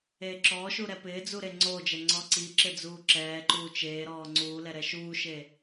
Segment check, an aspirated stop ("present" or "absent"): absent